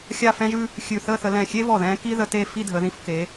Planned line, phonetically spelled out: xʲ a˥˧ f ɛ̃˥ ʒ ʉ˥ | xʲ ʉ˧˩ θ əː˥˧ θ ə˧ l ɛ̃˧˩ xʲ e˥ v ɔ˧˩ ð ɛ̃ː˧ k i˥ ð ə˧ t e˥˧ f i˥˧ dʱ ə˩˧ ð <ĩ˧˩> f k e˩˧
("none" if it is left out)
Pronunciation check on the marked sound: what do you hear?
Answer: ĩ˧˩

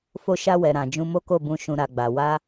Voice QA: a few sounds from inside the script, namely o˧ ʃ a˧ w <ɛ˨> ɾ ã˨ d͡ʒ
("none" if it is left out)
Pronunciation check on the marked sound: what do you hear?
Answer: ɛ˨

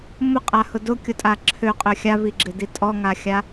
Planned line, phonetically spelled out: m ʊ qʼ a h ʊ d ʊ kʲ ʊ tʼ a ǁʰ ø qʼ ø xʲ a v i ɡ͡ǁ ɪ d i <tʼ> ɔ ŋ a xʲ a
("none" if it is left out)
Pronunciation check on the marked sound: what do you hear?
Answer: tʼ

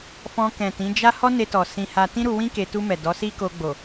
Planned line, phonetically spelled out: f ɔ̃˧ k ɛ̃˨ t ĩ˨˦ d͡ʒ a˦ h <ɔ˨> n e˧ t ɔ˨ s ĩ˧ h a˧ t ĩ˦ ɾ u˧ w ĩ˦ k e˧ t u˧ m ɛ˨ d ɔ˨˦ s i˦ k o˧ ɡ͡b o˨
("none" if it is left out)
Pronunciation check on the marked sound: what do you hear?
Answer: ɔ˦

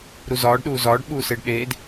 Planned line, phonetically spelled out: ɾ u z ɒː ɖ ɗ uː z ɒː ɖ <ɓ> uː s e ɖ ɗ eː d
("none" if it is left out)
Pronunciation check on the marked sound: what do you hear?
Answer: ɓ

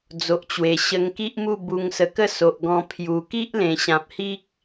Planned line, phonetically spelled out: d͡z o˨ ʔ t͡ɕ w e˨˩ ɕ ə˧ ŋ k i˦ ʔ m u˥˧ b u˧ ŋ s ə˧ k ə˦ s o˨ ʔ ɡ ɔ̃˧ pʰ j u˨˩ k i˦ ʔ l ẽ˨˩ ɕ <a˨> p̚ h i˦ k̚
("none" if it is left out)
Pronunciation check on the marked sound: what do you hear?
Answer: ã˨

